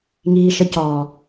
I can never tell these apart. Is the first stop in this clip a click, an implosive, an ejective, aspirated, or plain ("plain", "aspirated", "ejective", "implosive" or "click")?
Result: plain